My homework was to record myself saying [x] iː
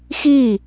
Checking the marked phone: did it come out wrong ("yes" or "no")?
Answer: no